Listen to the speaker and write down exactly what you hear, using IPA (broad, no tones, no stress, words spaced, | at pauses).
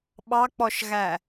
ɓɑk͡pɔʃɣæ